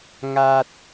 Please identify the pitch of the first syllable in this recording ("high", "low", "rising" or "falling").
low